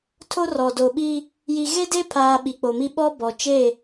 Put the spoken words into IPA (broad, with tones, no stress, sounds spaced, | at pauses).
tʰ o˦ r ɔ˨ d o˨ ɓ i˦ | j i˨ ɣ e˦ d e˦ pʰ aː˨ ɓ i˨ k͡p o˨ m i˦ ɓ ɔ˦ b ɔ˨ t͡ʃ e˦˨